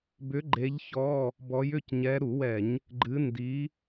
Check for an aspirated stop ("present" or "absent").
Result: absent